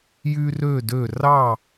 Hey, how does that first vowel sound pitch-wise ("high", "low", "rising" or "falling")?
high